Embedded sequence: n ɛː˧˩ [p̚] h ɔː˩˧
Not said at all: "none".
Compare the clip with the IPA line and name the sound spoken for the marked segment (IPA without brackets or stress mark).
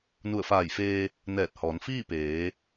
t̚